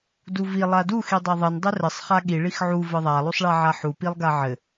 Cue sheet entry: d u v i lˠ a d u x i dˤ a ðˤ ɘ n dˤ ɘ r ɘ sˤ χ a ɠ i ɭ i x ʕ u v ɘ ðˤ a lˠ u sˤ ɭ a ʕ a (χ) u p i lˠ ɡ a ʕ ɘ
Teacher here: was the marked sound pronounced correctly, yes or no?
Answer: no